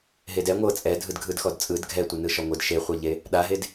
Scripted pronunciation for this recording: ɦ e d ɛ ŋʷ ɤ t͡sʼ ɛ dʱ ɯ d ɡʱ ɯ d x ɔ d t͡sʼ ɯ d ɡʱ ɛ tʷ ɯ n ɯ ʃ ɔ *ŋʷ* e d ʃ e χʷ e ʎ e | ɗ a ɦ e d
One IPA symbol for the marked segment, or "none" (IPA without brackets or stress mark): ŋʷ